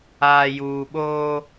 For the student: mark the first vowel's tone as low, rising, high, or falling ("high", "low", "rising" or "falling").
low